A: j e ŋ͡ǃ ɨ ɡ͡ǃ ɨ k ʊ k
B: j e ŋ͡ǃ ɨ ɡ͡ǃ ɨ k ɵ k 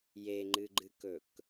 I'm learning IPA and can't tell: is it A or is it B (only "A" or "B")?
B